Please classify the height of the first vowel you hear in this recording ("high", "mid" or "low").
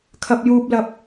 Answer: low